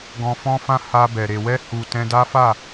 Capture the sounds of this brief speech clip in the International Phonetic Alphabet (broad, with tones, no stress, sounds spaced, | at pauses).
ɡ ɔ̃˧ f ɔ̃˦ f ã˦ h a˧ b ɛ˨ ɾ e˨ w ɛ˧ h u˨ t ɛ̃˧ d a˦ f a˦˨